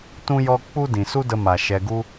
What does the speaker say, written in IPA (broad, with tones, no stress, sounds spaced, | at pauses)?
t ũ˦ j ɔ˦ k͡p u˦ d ĩ˨ s u˦ d ə˧ m a˨ ʃ ɛ˧ ɡ u˦